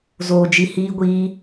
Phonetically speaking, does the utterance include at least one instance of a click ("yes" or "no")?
no